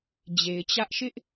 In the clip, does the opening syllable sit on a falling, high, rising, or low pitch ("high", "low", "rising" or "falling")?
low